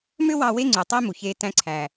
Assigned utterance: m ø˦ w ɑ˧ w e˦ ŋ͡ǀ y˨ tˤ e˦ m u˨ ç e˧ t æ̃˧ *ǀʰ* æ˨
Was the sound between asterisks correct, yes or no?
yes